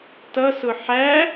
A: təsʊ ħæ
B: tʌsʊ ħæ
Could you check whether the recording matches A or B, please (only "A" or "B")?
B